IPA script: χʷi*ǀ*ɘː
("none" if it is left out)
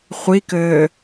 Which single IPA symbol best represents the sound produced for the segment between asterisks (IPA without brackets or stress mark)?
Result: k